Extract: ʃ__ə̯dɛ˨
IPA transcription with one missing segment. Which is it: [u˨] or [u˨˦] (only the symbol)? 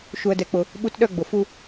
u˨